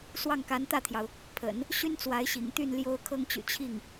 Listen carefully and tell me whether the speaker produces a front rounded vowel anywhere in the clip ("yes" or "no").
yes